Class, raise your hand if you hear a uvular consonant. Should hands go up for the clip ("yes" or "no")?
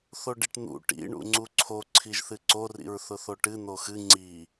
no